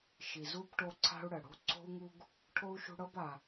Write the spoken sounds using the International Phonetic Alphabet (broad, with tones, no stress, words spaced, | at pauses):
ʃi˨zu˥bʈo˦ ǀʰa̤˥u̯ɽə˩ ɽo̤˥ ǀʰo̤˥u̯ŋu˥ɡ | ʈʰo˥u̯ʃṳ˦ɽɤ˥ba˨